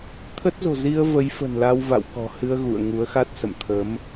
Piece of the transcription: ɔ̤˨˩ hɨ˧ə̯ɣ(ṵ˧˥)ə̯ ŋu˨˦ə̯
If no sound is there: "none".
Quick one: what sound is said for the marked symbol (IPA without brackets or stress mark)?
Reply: ṵ˧˨